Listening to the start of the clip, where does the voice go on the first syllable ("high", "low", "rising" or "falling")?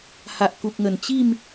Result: low